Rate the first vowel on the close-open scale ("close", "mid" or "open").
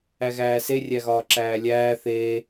open